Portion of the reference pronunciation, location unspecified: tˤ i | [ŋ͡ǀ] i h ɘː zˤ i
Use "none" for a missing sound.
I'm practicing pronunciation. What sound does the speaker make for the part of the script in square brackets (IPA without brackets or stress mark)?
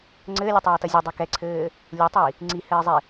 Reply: ŋ͡ǀ